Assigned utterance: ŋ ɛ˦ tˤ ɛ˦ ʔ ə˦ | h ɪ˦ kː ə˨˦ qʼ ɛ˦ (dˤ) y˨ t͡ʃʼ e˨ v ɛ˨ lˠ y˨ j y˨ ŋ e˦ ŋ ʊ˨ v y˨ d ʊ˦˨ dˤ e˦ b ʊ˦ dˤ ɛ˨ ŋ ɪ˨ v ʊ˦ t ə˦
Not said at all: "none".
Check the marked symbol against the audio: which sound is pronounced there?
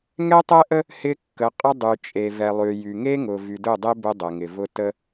dˤ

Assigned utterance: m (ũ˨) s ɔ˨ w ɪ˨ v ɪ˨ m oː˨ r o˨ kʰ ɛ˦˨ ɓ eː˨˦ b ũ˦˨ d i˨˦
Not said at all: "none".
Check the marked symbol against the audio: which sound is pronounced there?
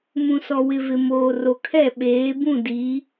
ũ˨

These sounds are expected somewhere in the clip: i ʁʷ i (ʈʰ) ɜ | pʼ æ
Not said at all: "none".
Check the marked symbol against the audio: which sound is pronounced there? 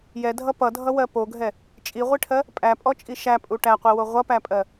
ʈʰ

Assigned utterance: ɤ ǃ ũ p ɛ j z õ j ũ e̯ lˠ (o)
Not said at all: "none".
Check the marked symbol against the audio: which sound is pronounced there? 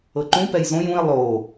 oː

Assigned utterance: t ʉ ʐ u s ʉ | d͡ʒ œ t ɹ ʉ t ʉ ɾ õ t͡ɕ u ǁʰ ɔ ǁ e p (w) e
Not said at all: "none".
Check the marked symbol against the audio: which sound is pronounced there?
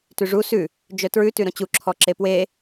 w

